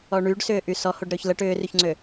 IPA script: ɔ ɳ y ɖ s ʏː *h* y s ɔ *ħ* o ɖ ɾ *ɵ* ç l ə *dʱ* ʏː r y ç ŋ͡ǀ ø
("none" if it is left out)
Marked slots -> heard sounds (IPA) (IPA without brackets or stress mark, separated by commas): ʔ, h, ø, ʈ